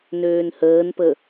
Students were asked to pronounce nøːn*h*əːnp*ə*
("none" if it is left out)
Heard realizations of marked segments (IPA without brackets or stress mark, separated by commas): h, ə